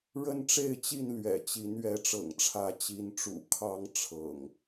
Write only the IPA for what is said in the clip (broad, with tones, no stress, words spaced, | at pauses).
ɻə˦nʈ͡ʂe˥˨ɪ̯t͡ɕi˥˨n lɥɛ̰˨˩t͡ɕi˨˦n ɥɛ˨˦ʈ͡ʂɤ̰˨˩ŋʈ͡ʂʰä˨˦ t͡ɕi˨˦nʈ͡ʂṵ˨˩kʰɑ˦ŋ ʈ͡ʂʰɤ̰˨˩ŋ